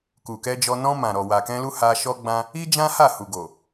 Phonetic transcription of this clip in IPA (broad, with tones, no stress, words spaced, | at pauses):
ku˨kɛ˧d͡ʒɔ˧ nɔ̃˧ mã˨ ɾɔ˨wa˨kɛ̃˧lu˧ ha˧ʃɔ˦ɡ͡bã˦ | i˦d͡ʒã˦ ha˦˨hu˨ɡo˨